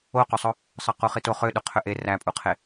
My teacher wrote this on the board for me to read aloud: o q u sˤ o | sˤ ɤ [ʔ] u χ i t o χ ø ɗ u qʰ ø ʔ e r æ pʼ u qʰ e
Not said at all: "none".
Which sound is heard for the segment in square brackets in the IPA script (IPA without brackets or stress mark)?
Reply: q